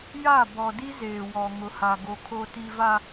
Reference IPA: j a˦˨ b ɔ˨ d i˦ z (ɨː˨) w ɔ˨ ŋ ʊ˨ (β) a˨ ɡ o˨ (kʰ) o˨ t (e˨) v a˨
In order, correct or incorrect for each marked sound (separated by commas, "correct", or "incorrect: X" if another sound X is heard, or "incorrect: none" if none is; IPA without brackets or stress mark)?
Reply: incorrect: eː˨, incorrect: h, correct, incorrect: i˨